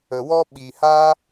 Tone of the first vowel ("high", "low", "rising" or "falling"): low